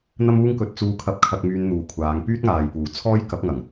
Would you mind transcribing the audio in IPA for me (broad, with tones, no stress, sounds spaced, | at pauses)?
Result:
n̪ ɐ˥ m uː˥ ŋ k ɵ˧ t̚ t͡s uː˧ kʰ ɐ˧ p̚ kʰ ɐ˧ k̚ m yː˧ n n̪ uː˨ kʷʰ aː˨˧ ŋ p yː˥ t̚ ŋ aː˨ j p uː˨˩ t͡sʰ ɔː˥ j k ɐ˨˥ p̚ ŋ ɐ˨˩ ŋ